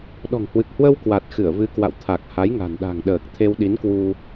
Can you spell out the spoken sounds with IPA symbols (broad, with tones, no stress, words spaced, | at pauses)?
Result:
ɗɔ̤˨˩ŋhwɨ˨˩k̚hwə˧w kwa˨˩t̚ xɨ˧˩ə̯vɨ˨˦kwa̰˧˨w t̪ʰa˨˩k̚ha˨˦jŋa̤˨˩n ɗa̤˨˩ŋɗəː˨˩k̚ t̪ʰe˧wɗi˨˦nkwu˧